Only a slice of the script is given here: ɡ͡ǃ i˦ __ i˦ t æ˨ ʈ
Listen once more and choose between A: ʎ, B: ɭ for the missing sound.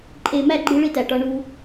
B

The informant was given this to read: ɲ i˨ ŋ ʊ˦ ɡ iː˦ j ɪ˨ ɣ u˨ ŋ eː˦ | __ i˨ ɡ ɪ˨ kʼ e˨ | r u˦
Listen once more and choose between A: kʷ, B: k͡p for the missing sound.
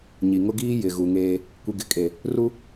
A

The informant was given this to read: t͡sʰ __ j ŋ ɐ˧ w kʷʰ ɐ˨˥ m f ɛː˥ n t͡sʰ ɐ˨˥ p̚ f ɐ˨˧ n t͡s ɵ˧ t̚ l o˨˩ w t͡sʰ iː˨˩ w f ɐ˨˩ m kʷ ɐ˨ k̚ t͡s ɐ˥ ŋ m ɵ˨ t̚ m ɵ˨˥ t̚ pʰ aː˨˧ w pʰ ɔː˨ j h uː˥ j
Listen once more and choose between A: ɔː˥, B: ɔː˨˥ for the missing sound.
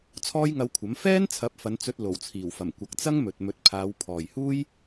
A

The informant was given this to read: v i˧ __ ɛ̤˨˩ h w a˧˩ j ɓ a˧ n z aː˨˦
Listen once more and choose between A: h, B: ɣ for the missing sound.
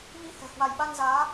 A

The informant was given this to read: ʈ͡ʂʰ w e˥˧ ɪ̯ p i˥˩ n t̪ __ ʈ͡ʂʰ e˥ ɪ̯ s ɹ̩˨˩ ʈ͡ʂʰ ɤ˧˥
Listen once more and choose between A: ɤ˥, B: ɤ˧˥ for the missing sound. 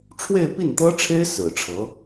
A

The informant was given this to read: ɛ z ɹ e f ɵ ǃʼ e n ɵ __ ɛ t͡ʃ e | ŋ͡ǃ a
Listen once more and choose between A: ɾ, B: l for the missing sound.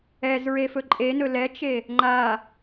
B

